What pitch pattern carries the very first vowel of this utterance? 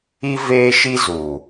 high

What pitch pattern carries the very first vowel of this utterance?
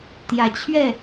low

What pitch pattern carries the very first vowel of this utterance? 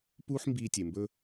high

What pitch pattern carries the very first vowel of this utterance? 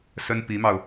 high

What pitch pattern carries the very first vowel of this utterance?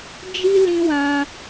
high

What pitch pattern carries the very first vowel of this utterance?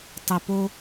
low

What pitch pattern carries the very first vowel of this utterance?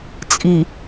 low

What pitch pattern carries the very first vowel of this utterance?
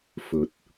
low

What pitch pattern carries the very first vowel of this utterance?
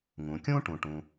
low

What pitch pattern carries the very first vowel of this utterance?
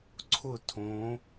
falling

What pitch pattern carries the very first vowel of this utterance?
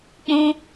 high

